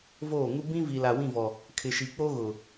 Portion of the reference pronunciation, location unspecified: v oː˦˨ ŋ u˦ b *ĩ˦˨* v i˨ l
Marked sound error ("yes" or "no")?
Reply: yes